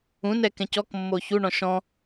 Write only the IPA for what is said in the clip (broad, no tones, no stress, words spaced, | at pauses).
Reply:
ũnɛkɛ̃c ɔkmːo çuɳɔ̃ ʃɔ̃